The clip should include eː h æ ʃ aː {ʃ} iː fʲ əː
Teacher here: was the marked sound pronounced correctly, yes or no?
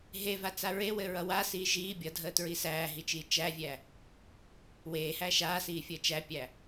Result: no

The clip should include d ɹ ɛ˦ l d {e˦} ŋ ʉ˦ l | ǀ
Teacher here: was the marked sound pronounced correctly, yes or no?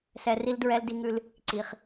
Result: no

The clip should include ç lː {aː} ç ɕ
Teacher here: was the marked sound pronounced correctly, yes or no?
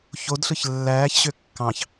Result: no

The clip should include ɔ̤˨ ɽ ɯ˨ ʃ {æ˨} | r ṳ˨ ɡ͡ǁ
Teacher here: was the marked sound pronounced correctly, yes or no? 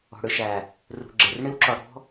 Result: yes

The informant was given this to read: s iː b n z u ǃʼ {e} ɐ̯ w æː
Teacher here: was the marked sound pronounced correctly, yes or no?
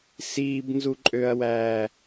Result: no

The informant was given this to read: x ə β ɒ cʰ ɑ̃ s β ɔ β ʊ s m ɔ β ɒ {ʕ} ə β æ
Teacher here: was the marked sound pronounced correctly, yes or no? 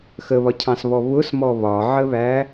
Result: yes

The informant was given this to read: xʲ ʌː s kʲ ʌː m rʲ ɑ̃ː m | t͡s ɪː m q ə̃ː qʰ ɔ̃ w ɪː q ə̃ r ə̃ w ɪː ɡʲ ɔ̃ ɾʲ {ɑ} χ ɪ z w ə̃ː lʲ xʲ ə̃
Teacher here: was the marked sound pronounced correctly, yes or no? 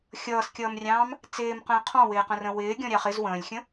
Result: yes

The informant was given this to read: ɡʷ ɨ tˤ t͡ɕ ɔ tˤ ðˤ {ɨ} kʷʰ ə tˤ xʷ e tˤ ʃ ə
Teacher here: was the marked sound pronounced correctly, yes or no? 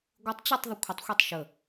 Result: yes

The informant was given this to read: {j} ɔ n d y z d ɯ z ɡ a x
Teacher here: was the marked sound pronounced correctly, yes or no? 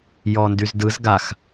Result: yes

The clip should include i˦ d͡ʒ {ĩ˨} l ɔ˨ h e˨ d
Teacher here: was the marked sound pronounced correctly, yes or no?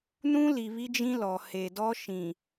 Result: no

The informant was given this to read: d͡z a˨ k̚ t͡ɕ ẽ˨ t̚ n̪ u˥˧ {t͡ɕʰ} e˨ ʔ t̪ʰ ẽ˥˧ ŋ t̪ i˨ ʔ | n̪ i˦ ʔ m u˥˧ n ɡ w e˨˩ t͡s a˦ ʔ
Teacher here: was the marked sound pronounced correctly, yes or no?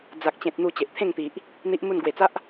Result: no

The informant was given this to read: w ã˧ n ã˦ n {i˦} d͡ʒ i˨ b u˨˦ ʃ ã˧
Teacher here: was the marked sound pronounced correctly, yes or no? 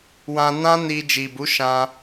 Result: no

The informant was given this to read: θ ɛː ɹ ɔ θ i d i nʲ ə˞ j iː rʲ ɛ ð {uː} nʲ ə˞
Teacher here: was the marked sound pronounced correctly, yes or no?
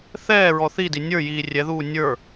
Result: yes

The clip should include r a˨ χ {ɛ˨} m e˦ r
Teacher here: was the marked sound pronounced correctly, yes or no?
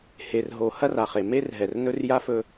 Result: no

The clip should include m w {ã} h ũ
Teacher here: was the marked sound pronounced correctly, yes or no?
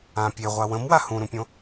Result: no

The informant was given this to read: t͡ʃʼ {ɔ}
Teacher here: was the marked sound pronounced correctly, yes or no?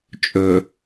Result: no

